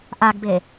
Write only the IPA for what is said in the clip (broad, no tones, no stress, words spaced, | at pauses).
ʔaɡbe